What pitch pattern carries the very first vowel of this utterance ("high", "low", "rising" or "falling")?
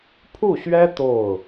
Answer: falling